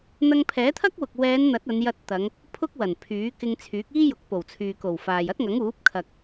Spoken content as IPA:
n̪ ɐ˧ ŋ pʰ ɛː˨˥ t̪ʰ ɐ˥ k̚ w ʊ˨ k̚ w ɛː˨˧ n n̪ ɐ˨˥ t̚ ɐ˨˧ n j ɐ˧ t̚ t̪ ɐ˨˧ ŋ | pʰ ʊ˥ k̚ w ɐ˨˩ n pʰ yː˨˥ k ɪ˧ ŋ t͡sʰ yː˨˥ k̚ iː˥ j ʊ˨˥ k̚ p o˨˩ w t͡sʰ yː˨ k o˨˩ w f aː˨ j ɐ˥ t̚ ŋ ɐ˨˥ ŋ uː˨˥ p̚ kʰ ɐ˨ k̚

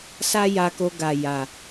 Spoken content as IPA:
s a˦ j a˧ k o˧ ɡ a˨ j a˨

